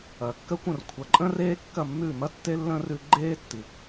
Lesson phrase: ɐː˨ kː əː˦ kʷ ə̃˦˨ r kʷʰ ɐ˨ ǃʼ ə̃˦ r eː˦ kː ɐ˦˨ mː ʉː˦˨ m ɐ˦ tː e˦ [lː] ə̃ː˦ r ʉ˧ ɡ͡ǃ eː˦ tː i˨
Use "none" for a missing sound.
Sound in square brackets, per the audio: lː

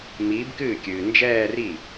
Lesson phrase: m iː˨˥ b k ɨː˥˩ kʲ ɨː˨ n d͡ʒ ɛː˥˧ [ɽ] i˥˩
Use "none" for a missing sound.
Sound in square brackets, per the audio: r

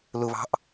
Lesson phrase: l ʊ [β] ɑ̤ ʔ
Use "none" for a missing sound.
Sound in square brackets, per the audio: β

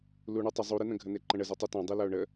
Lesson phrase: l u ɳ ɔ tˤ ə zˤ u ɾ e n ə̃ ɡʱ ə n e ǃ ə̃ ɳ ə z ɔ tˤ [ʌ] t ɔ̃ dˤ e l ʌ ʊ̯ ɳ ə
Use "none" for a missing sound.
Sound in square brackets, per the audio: ʌ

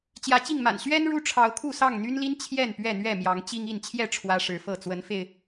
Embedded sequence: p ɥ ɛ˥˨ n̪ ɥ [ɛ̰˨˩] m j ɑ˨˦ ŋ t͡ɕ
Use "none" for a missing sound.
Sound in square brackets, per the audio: ɛ˥˨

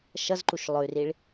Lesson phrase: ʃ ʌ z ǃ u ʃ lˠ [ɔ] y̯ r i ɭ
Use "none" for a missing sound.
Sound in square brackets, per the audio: ʊ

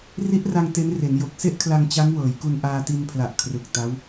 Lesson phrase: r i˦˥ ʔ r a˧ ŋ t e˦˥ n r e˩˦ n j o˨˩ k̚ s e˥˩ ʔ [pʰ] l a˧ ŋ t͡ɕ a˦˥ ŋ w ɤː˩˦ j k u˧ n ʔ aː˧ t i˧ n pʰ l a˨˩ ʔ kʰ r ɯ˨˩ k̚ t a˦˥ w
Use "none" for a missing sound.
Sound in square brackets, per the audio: kʰ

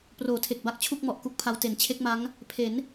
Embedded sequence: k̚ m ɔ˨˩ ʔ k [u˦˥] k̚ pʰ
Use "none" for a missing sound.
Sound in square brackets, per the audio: u˦˥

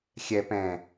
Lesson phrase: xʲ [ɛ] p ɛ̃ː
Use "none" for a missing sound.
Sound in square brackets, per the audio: ɛ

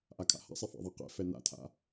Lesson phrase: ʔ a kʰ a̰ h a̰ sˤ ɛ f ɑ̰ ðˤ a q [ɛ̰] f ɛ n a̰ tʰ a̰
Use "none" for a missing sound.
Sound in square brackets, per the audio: ɛ̰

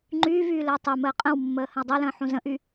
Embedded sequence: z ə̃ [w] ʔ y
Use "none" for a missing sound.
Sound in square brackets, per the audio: none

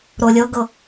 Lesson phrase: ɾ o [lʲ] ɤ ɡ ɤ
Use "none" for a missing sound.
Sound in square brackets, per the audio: lʲ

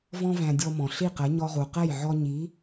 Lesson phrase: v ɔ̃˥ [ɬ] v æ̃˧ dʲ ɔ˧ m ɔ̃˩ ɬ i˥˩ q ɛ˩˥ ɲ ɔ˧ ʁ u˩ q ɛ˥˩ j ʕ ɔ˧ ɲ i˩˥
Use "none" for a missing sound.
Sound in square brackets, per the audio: none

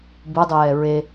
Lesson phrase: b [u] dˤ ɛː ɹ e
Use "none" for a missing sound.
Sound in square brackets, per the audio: u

